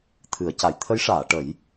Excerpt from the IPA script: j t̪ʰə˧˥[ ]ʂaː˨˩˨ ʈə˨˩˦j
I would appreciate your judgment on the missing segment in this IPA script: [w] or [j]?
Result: j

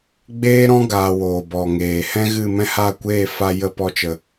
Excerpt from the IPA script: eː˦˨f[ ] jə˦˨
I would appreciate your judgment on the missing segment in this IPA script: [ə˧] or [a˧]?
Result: a˧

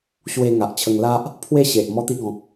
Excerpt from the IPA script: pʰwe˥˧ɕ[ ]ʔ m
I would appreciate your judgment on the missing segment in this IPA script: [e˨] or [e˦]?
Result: e˨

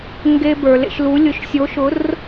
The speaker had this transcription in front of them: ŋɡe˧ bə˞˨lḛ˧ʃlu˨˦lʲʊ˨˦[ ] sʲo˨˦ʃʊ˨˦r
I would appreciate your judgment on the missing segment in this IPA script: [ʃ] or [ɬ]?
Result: ʃ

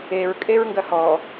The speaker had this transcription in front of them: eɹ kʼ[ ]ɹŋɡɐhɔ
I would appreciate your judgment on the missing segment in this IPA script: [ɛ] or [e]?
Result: e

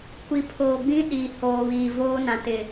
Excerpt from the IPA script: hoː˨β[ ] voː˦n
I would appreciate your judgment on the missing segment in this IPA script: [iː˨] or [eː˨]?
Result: iː˨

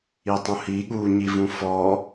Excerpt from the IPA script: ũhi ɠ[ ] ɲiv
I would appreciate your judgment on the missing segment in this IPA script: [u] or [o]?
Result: u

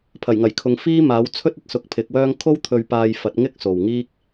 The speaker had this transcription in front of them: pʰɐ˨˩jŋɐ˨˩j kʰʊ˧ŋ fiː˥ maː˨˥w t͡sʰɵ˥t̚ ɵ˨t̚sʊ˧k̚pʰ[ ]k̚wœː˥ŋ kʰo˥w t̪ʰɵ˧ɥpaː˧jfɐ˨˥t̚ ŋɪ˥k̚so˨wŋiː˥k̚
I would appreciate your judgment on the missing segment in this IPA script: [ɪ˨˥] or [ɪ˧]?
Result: ɪ˨˥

